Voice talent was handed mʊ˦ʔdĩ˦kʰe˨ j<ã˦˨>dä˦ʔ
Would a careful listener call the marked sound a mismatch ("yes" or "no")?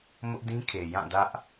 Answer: no